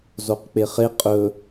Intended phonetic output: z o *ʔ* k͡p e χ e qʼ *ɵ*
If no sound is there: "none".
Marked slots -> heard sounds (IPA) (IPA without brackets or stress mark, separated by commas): q, ɵ